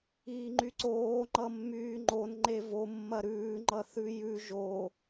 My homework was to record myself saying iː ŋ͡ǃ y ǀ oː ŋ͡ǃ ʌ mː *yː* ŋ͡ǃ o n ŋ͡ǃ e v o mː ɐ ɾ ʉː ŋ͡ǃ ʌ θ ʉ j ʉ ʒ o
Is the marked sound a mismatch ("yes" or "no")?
no